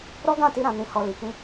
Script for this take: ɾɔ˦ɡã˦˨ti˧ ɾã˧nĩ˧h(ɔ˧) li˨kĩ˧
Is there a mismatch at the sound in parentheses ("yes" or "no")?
no